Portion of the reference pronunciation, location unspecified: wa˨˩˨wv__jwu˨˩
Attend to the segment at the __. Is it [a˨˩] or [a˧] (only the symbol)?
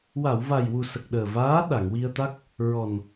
a˨˩